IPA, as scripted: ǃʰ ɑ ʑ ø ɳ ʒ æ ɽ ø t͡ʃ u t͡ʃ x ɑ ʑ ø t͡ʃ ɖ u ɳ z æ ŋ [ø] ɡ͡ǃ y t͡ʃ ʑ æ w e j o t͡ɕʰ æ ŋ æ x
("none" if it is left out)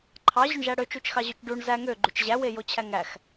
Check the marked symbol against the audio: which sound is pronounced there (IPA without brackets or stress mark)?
ø